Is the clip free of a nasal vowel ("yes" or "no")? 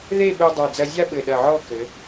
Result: yes